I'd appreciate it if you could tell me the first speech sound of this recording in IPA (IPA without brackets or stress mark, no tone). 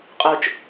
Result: qʼ